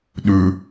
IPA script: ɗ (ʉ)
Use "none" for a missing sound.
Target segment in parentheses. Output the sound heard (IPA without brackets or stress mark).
ʉ